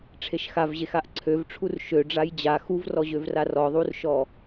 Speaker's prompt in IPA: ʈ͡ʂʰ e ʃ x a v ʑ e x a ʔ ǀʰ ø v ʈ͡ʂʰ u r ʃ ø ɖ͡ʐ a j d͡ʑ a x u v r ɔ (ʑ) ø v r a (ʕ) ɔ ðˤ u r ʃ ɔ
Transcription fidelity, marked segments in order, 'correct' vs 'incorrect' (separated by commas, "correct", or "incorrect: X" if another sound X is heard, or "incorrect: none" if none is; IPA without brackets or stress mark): correct, incorrect: r